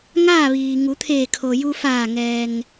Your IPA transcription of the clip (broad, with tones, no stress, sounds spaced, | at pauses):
ŋ aː˥˨ ʋ iː˩ ŋ u˩˧ t̪ʰ eː˧˩ kʰ o˩ j u˧ f aː˧˩ ŋ ɛː˩ ŋ